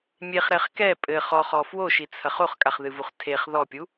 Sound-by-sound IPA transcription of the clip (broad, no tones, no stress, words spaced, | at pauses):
mʲeχɾɛχ kɛ pʼɘ χɔχɔ fwoʃit͡sʰɐχ oχkʼaχðɨvuχ tʰeχ ðɔpʲu